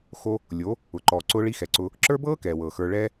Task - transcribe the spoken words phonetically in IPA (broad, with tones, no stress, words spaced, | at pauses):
xo˦ | lʲo˨˦ | ʊ˨ǃɔː˨ ǀʊː˧ɭi˧ xɛ˨ǀʊː˧ | ǁə˞˦bɤː˦ kɛː˨wɤː˨xə˞˧ ɭɛː˦